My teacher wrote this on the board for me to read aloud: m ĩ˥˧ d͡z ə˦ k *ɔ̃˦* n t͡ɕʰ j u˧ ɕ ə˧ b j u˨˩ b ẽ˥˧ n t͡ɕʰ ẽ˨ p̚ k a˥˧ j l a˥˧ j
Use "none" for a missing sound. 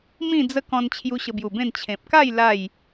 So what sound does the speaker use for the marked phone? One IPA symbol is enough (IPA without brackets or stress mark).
ɔ̃˧